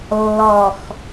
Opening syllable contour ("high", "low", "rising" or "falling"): low